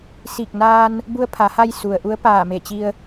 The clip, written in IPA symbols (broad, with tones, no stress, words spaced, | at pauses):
si˧˩k̚naː˧n | bu˧ə̯pʰa˩˧ha˧j su˩ə̯ ʔu˧˥ə̯ paː˧˩me˧˩t͡ɕi˧ə̯